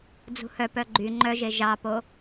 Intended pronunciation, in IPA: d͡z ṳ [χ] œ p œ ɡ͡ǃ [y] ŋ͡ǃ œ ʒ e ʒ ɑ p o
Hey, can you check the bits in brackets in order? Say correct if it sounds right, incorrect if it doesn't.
incorrect: h, correct

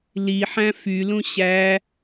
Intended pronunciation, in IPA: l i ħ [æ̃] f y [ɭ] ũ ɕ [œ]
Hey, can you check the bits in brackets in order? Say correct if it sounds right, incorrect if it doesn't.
correct, incorrect: l, incorrect: æ

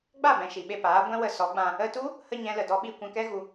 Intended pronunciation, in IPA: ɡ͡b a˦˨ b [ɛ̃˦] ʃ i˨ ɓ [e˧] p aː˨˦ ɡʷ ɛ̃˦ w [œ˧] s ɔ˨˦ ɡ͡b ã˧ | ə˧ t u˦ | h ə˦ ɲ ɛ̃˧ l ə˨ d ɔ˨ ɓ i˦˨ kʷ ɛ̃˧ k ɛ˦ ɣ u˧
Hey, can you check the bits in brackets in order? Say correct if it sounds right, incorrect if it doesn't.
incorrect: ɛ̃˨, correct, incorrect: ə˧

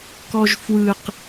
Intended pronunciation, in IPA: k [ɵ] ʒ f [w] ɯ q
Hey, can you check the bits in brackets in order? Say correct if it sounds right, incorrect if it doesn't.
incorrect: ɔ, correct

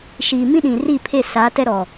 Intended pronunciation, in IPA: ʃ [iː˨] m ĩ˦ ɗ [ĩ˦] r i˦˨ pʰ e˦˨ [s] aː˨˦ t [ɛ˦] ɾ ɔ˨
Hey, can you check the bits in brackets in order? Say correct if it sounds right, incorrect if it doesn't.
correct, incorrect: ĩ˨, correct, correct

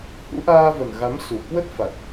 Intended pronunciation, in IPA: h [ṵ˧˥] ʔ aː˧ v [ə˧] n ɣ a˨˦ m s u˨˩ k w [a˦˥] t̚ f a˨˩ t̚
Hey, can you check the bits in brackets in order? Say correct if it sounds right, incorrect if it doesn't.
correct, incorrect: ə˨˩, incorrect: ə˦˥

